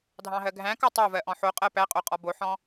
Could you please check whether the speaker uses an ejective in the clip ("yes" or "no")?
yes